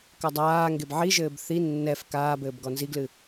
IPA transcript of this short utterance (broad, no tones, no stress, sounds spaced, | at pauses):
k ɐ dˤ aː ŋ ɡ e b ʕ i ʒ ɘː b θ i nː ɛ f k aː b ɘː b ɡ ɔ n z i ɡ l ɨ